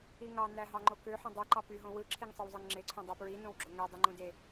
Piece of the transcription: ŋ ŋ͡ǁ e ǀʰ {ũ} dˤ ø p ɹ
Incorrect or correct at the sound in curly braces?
incorrect: õ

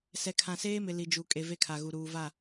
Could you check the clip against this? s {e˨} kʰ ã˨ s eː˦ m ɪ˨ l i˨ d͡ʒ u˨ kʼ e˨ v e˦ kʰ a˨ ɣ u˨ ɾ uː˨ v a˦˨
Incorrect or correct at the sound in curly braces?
incorrect: ɛ˨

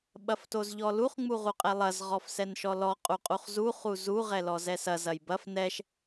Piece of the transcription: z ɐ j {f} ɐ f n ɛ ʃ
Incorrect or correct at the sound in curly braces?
incorrect: b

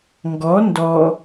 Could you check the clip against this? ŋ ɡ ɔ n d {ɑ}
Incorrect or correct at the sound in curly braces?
incorrect: ɔ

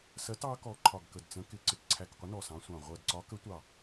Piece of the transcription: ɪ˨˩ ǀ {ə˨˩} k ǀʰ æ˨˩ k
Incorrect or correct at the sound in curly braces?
incorrect: ɪ˨˩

